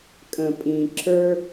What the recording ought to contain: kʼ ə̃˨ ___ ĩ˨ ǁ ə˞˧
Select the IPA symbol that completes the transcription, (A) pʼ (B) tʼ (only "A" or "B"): A